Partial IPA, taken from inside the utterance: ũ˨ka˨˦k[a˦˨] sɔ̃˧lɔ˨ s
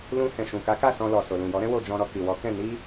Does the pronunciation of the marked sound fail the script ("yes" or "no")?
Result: no